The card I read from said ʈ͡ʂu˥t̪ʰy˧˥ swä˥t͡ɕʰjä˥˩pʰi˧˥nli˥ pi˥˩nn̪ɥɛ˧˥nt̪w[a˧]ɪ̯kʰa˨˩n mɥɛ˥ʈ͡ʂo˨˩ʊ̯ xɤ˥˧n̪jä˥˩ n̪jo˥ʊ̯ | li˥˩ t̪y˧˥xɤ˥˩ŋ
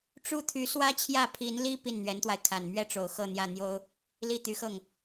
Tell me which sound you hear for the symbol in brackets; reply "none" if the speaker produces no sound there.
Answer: a˧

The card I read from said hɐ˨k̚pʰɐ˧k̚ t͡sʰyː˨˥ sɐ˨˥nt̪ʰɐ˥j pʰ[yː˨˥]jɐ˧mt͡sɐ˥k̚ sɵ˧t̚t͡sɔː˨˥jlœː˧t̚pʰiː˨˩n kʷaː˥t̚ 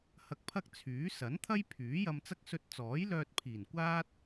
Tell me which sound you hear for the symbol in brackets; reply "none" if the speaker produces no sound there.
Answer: yː˨˥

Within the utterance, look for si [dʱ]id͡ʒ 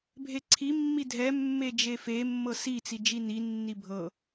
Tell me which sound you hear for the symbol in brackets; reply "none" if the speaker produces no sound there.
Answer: t͡s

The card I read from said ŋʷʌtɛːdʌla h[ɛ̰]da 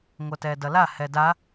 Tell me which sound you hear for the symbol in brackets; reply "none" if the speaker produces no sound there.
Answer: ɛ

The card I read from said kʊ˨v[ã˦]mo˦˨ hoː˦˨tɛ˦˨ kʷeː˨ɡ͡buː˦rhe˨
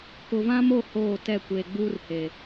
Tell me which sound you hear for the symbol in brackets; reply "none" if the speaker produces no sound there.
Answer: ã˦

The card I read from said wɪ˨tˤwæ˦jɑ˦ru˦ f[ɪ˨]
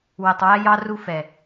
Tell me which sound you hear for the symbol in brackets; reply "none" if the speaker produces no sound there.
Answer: ɛ˨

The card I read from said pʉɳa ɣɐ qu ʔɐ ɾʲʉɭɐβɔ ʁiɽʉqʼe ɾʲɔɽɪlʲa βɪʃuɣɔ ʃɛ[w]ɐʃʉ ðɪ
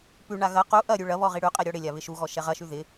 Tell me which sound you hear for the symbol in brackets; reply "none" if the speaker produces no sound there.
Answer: ʁ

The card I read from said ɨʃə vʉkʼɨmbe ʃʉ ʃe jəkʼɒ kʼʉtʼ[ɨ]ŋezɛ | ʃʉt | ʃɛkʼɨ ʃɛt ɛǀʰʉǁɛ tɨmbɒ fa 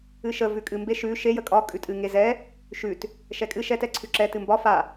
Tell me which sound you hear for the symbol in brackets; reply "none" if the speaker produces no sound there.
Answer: ɨ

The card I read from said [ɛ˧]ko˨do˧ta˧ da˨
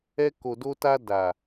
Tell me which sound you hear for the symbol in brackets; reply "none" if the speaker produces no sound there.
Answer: ɛ˧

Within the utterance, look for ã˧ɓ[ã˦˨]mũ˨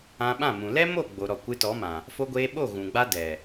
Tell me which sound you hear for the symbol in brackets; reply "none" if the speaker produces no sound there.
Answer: ã˦˨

